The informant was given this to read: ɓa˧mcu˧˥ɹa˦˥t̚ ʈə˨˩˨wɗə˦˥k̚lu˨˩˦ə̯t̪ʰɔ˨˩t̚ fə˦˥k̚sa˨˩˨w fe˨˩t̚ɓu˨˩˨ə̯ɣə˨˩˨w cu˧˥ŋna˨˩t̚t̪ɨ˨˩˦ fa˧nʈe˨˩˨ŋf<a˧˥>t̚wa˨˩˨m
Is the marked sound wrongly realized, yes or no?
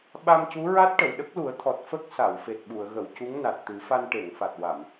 yes